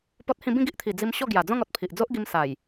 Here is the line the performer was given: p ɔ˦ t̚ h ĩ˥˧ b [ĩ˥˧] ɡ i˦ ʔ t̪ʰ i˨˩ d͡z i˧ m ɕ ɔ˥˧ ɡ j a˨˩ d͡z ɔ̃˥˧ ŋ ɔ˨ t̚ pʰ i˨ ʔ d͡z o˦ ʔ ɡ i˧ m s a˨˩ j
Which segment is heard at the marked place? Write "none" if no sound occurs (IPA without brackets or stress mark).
ĩ˥˧